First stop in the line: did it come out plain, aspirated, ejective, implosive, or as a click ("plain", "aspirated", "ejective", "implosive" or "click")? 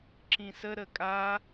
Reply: click